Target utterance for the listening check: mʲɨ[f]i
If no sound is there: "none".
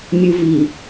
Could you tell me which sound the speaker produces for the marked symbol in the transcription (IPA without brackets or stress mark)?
v